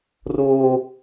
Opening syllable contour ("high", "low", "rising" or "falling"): high